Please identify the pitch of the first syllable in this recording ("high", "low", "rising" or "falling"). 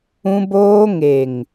high